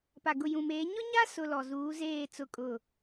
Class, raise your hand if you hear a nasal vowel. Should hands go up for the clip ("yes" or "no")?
yes